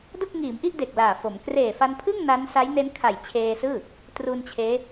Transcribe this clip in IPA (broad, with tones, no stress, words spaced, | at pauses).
do˥˩k̚ŋiː˩˦mʔi˥˩ʔ de˨˩k̚laː˨˩fo˩˦m kreː˨˩fa˧npʰɯ˥˩ŋ na˦˥n sa˦˥jne˦˥nkʰa˨˩j t͡ɕʰeː˧sɯː˥˩ | tru˧n t͡ɕʰeː˦˥